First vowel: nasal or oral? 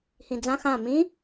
nasal